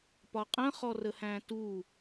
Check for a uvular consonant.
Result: present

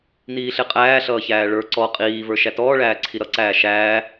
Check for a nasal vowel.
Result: absent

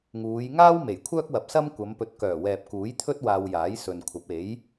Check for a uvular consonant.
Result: absent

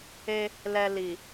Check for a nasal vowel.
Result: absent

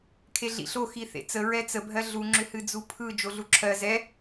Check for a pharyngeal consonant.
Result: absent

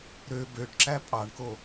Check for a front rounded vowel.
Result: present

